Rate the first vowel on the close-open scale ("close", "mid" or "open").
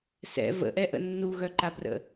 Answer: mid